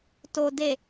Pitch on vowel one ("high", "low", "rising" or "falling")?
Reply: low